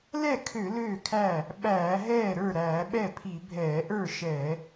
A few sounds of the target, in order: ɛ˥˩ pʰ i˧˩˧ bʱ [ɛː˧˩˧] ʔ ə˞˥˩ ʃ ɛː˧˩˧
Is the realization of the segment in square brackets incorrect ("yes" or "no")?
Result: no